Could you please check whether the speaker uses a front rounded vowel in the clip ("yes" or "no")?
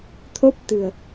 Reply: no